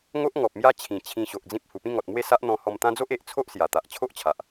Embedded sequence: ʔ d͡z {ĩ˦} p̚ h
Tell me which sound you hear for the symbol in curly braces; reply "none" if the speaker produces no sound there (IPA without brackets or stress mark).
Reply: ĩ˦